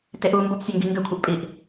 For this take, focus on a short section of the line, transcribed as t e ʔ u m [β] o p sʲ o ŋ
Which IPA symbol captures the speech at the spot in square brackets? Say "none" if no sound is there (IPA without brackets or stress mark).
b